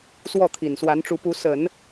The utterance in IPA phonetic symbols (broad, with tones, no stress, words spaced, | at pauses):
swɔ˥˩t̪ʰi˨˩nswa˧˥nʈ͡ʂu˧˥ pu˧˥sə˨˩˦n